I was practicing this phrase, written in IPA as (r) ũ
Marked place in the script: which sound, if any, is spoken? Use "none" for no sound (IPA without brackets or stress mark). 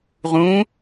ʁ